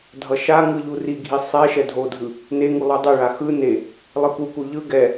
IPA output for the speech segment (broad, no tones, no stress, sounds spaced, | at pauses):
dʱ ʌ ʃ a ŋ ɯ ʎ u r i ɡʱ i sˤ ɛ ʃ ɛ dʱ o dʱ ɯ | n e ŋ u lˠ u dˤ e ɭ a x ɯ n e | lˠ ɯ k u k u ʎ ɯ ɡ ɛ